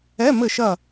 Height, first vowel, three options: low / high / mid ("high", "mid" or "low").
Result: mid